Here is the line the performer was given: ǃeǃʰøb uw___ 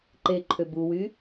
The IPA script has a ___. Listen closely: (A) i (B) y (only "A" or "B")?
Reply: B